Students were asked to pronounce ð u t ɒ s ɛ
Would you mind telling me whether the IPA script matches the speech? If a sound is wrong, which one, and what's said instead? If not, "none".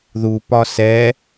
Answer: t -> p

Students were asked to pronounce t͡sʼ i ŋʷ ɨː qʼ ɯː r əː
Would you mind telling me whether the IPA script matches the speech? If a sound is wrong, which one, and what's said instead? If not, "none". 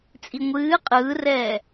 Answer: əː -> ɛː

